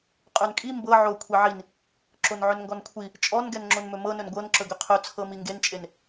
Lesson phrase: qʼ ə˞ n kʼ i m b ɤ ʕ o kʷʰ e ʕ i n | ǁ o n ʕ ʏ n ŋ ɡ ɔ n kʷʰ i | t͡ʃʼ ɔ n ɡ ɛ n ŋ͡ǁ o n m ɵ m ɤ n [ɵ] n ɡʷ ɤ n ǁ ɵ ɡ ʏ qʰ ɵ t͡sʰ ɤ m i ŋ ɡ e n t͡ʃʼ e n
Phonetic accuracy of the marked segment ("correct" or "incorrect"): correct